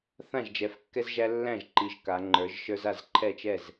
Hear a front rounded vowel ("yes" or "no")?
no